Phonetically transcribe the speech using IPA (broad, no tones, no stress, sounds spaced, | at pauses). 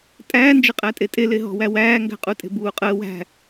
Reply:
tʼ æː n d͡ʒ ə qʼ æ tʼ e tʼ e l e ɦ ɔ̤ w æ w æː ŋ ɡ æ̤ qʼ u tʼ e̤ b uː qʼ əː w æ̤